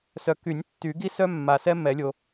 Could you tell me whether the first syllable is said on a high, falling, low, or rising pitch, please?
low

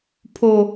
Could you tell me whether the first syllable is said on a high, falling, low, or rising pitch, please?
high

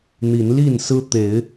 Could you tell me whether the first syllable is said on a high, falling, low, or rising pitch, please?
rising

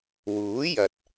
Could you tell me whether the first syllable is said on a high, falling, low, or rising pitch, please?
rising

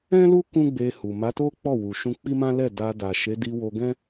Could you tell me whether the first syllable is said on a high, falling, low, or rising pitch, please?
high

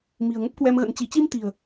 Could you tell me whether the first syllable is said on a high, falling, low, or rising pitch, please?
low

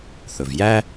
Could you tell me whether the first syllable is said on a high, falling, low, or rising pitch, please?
low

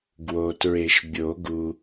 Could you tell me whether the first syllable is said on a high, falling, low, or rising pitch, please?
low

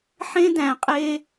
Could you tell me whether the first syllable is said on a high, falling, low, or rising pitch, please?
high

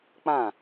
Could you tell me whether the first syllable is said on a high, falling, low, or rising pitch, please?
falling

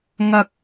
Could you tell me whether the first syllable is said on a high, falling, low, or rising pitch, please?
high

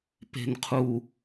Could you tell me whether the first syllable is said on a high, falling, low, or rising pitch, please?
low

